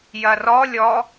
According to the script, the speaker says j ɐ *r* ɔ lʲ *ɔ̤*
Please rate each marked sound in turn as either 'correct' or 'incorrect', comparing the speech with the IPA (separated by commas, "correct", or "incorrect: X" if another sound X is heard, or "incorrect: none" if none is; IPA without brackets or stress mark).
correct, incorrect: ɔ